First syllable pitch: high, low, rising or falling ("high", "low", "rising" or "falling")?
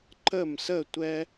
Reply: falling